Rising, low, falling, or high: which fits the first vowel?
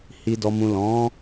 low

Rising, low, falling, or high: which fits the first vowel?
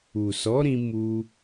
low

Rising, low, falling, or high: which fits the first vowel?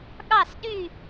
falling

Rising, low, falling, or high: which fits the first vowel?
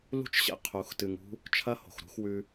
high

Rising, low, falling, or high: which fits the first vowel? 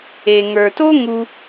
low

